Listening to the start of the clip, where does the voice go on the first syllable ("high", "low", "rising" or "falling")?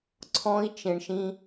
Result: high